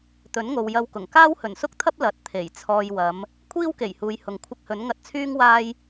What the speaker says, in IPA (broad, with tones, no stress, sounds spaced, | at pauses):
t̪ ɵ˨˥ n ŋ o˨ w j ɐ˧ w k ʊ˨˩ ŋ k aː˥ w h ɵ˨˩ n s ʊ˥ k̚ t̪ʰ ɐ˥ p̚ l ɐ˨˥ t̚ t̪ʰ e˨˩ j t͡sʰ ɔː˧ j w ɐ˨˧ m | kʷʰ iː˥ w k e˨˩ j h uː˨ j h ʊ˨ ŋ kʷʰ ɪ˧ k̚ h ɵ˨˥ n ŋ ɐ˧ t̚ t͡sʰ yː˥ ŋ w aː˥ j